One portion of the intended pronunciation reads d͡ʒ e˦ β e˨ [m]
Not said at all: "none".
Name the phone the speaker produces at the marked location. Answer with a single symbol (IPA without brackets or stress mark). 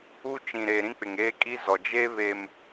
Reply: m